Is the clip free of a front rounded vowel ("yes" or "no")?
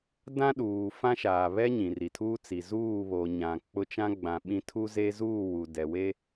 yes